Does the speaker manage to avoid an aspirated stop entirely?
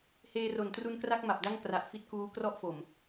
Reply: yes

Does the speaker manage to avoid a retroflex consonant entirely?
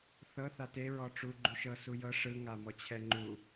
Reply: no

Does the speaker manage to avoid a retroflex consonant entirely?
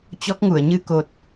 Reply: yes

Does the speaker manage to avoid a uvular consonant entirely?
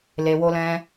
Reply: yes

